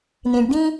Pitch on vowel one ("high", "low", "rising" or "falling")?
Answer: low